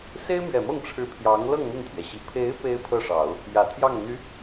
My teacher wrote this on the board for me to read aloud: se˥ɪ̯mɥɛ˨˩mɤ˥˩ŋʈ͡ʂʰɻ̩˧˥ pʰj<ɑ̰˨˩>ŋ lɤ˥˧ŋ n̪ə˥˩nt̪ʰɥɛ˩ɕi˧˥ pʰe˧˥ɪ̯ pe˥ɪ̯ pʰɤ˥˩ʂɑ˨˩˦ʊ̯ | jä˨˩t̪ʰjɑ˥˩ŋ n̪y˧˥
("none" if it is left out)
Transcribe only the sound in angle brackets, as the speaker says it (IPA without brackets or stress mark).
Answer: ɑ˧˥